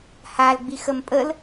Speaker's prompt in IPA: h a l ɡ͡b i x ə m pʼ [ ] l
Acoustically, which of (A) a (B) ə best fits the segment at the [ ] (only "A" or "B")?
B